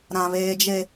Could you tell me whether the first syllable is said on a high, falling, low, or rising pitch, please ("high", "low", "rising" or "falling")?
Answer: low